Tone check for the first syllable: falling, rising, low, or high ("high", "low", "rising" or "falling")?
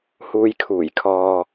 low